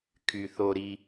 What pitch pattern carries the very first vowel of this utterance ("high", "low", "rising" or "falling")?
low